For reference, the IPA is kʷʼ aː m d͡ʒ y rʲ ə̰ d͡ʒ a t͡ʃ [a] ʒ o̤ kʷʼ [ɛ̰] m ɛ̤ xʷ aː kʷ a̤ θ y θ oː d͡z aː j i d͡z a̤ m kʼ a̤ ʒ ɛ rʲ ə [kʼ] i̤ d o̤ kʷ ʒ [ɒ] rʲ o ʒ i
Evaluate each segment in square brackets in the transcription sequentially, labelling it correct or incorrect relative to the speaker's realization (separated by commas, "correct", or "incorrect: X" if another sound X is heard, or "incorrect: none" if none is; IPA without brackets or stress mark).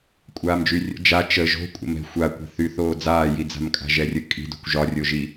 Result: incorrect: ə, incorrect: ə̰, correct, correct